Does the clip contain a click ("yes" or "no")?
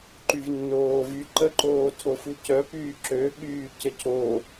yes